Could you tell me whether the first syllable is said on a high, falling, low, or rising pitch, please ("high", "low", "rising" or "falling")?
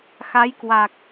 rising